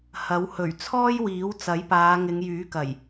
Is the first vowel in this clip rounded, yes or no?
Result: no